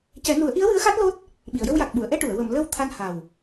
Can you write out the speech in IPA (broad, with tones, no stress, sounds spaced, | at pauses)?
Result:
c ɛ˨˩˦ n u˨˩˦ ə̯ ʔ i˧˥ ə̯ w ɨ˧˥ ə̯ x a˦˥ t̚ l o˦˥ t̚ | ɓ i˨˩˨ ə̯ j ə˧ w j a˨˩ k̚ ɓ u˨˩˨ ə̯ ʔ ɛ˧ ʈ u˨˩˨ ə̯ w ə˨˩˨ m l ə˧ w t̪ʰ a˧ n h a˨˩ w